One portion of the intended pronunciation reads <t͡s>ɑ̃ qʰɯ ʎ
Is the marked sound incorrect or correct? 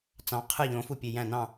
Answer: correct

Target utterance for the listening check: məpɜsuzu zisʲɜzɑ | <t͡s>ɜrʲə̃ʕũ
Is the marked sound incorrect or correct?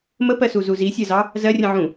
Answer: incorrect: z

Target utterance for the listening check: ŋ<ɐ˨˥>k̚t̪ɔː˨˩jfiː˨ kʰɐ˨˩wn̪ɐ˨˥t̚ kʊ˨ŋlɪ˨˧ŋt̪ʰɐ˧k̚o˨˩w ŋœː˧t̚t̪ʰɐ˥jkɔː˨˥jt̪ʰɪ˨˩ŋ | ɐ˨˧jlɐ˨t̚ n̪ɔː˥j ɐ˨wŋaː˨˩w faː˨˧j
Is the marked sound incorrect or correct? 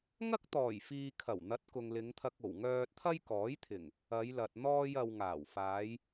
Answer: incorrect: ɐ˥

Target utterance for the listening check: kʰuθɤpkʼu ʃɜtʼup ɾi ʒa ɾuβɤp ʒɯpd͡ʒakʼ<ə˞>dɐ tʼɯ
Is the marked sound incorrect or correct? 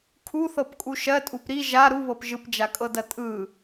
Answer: incorrect: ɤ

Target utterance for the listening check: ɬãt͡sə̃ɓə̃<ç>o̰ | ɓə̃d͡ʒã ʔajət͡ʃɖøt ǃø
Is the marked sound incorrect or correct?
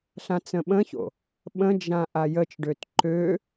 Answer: correct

